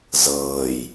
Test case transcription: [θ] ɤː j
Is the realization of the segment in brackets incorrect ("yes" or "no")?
yes